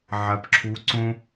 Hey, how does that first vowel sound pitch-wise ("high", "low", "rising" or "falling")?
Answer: low